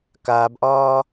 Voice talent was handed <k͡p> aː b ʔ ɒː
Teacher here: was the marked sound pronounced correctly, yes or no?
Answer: no